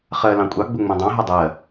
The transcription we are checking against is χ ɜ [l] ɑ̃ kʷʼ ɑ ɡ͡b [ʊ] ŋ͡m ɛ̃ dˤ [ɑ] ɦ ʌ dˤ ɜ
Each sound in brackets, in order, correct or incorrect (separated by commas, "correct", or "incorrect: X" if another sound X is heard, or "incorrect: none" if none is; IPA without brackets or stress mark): correct, correct, incorrect: ɑ̃